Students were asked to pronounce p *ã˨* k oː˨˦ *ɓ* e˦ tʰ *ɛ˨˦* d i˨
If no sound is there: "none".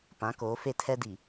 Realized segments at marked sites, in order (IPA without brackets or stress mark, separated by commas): ã˨˦, f, ɛ˦